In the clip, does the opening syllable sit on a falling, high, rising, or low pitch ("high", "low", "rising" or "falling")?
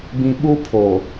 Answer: low